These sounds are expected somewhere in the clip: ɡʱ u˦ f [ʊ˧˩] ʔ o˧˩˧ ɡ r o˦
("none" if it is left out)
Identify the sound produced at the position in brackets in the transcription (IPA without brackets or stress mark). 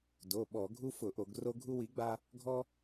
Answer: ʊ˧˩˧